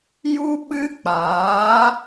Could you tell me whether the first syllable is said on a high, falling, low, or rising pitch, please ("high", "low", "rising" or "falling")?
high